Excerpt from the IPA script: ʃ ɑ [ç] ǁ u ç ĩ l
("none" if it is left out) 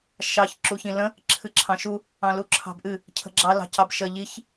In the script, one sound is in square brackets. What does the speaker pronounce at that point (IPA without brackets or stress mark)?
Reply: ç